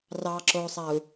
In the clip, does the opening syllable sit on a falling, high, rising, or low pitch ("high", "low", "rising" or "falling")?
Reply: low